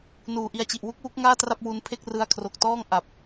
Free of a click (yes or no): yes